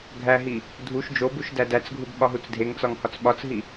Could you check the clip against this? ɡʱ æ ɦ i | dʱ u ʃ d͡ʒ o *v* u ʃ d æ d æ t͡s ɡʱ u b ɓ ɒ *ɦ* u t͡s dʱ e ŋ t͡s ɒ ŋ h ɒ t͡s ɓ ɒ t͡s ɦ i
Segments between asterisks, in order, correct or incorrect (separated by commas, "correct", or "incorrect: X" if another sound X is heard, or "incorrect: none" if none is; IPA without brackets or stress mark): incorrect: b, correct